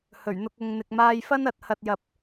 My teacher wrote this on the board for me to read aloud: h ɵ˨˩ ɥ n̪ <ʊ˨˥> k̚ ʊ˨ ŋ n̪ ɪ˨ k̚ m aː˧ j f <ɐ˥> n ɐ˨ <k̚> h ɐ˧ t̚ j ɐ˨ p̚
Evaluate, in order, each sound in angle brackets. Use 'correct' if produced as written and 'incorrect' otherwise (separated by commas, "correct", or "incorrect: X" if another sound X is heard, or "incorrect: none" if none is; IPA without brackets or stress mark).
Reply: incorrect: ʊ˧, correct, incorrect: t̚